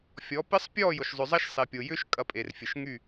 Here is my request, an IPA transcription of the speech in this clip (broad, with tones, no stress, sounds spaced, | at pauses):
fʲ ɔ˨˦ p ɪ˦ sˤ pʲ ɔ˦˨ j ʊ˨ ʃ zˤ ʏ˨ zˤ ɐ˦ ʃ sˤ e˨ pʲ o˨ j ʏ˦ ʃ kʼ ɐ˨˦ pʼ e˨ r fʲ ə˨ ʃ ŋ y˦˨